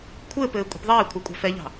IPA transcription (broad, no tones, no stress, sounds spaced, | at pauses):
kʷʰ ɘː p ɘː kʷʼ i̤ p ðˤ ɛː ɪ̯ kʷʰ ɑ kʷʼ ɑ̤ f ɛ ʎ ɑ̤